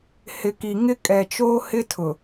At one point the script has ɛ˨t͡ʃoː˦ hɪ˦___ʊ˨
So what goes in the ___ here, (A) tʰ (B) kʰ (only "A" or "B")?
A